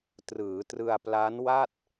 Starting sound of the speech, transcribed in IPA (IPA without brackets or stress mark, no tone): t